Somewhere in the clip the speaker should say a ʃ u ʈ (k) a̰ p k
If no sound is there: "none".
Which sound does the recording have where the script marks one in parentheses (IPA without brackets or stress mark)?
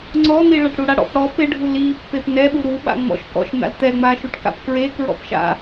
k